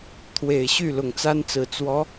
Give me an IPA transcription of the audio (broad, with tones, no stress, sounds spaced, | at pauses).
t̪ʰ w e˨˩ ɪ̯ ɕ y˥˩ l ʊ˨˩ ŋ t͡s a˥ n t͡s ɹ̩˨˩ t͡s w ɔ˧˥